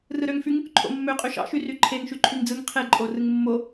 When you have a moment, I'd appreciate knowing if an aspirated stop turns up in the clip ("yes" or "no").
yes